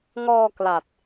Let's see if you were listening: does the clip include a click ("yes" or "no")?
no